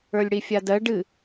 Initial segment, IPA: ə˞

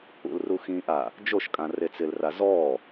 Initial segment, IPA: ṵ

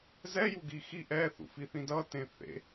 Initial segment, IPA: z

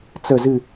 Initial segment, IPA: t͡s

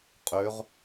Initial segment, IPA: qʼ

